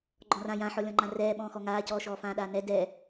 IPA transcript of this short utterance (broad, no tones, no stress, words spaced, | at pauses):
ɡ͡ǃɔ̃rã jãħɔlʲɔ̃ŋ͡ǃã rɛːɓɔ̃ː xɔŋaːcɔː ʃɔːfãːɗaːnɛ dɛ